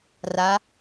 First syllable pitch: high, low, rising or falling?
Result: rising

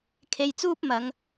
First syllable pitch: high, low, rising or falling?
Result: low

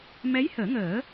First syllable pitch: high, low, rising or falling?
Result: rising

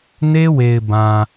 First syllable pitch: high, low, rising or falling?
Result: high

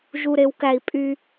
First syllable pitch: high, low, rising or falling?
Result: low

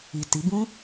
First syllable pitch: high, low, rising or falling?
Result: low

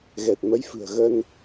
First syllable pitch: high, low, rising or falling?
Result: low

